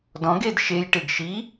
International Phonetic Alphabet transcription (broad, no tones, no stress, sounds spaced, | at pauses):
d ɔ̃ ɡ e d ʃ e j ʈ e ɡ ʃ i